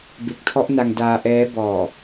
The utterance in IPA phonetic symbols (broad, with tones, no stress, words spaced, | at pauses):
be˨˩k̚tʰɔ˦˥ʔ na˧ŋdaː˧ ʔɛː˦˥ bɔː˨˩